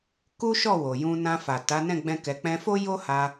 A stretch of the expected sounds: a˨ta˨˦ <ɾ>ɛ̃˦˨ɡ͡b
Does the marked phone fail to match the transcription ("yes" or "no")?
yes